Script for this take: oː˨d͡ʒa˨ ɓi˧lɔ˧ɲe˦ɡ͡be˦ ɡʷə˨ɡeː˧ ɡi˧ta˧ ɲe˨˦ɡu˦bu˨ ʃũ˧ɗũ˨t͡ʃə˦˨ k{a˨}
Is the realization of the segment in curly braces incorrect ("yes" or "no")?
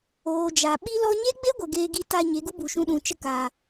no